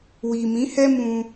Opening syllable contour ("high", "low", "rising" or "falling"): low